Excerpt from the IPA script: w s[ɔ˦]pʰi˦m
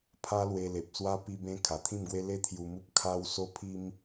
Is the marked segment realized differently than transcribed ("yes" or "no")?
yes